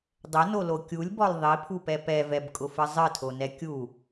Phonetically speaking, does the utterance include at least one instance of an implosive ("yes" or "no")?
no